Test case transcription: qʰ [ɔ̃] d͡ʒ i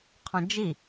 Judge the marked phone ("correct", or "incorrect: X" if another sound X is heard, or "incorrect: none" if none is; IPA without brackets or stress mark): correct